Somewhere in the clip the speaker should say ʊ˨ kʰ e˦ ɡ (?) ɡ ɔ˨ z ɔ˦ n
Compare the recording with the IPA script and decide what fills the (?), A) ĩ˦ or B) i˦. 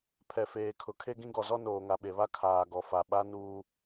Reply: A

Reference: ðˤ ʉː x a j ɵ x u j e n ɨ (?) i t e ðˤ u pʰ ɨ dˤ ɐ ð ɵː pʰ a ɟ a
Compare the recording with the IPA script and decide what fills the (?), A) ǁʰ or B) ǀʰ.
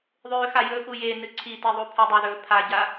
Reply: B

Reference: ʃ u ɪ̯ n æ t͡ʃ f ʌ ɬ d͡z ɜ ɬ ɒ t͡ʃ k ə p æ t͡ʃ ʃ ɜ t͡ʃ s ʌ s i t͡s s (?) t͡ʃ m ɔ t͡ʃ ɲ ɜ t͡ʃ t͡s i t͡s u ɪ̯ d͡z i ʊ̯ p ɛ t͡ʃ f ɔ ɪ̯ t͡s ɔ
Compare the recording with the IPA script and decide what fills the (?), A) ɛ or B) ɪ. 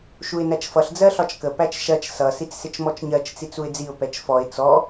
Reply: B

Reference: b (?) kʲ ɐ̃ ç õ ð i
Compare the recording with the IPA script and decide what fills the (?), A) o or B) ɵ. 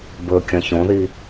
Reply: B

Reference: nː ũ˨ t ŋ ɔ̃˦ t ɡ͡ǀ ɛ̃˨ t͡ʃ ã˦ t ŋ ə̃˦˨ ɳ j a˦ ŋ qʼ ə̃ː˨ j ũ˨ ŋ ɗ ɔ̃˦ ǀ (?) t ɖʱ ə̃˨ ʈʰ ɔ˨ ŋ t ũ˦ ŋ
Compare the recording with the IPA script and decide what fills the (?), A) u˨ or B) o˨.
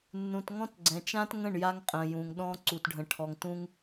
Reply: A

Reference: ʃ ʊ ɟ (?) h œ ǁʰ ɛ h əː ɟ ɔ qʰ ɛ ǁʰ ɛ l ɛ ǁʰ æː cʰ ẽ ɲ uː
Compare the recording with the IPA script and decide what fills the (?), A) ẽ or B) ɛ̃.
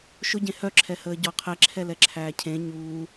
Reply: A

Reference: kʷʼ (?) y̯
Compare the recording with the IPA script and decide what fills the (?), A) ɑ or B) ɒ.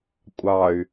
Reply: A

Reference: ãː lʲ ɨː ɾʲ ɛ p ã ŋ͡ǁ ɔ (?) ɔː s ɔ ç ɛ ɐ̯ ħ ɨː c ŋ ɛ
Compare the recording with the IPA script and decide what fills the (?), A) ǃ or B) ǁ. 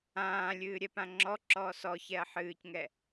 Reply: B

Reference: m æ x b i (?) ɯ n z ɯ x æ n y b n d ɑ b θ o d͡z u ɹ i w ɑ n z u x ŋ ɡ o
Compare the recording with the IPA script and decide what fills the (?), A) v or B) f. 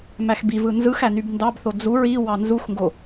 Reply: A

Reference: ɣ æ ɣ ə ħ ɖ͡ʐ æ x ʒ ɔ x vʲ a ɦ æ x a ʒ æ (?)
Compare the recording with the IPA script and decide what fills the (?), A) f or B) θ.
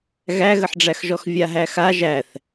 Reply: B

